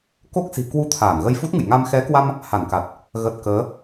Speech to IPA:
k o˦˥ k̚ s i̤˨˩ k w u˧ t̪ʰ aː˧˩ n ɣ ə˧ j f u˦˥ t̚ ŋ ɨ̰˧˨ j ŋ a˧ m x ɛ˨˦ k w a˧ m | h a˧˩ n k a˨˩ t̚ | ɣ ə˨˩ t̚ k əː˨˦

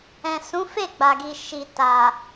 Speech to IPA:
ɛ̃˨ s ũ˨˦ f e˦˨ ɡ͡b a˨ ɡ i˨ ʃ i˨ t a˨

